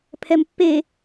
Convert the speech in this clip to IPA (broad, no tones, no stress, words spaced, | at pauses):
pʰɛmpːe